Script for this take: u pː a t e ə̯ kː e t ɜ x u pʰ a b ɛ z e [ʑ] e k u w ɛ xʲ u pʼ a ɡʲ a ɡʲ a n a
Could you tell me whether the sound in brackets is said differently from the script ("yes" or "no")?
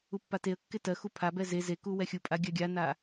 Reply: yes